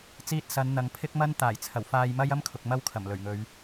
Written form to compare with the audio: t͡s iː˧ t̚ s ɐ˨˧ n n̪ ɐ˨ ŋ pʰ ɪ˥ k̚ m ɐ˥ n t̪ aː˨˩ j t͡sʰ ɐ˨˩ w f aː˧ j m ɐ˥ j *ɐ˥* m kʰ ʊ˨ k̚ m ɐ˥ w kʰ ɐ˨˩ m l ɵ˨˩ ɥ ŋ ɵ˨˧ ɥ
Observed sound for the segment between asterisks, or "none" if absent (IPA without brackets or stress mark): ɐ˥